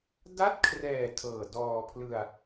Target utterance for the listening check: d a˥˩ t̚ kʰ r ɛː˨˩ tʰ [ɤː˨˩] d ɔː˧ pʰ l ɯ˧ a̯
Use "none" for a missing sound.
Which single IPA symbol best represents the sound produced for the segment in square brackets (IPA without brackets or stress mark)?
ɤː˨˩